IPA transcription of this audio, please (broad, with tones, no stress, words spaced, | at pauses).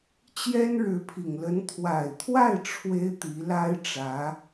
t͡ɕjɛ˥nɻɻ̩˧˥pʰi˨˩ŋlə˧˥n t̪ʰwa˨˩ɪ̯t̪ʰwa˥˩ɪ̯ ʈ͡ʂʰwe˥ɪ̯t̪i˧˥la˥ɪ̯ʈ͡ʂä˧˥